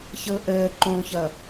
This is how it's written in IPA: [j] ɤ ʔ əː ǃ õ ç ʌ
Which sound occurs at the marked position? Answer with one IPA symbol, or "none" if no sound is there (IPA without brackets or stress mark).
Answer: ç